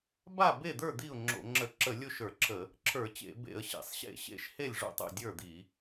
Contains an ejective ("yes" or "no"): no